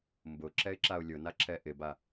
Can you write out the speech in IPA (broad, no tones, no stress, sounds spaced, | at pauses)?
m b ʊ ǁ ɛ ɪ̯ ǁ a ʊ̯ lʲ ʊ n a ǁʰ ɛ ʔ ɪ b a